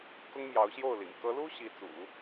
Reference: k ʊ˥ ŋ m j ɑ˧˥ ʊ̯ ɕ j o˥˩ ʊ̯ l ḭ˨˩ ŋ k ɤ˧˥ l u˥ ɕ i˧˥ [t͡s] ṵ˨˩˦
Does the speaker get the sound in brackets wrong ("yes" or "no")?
no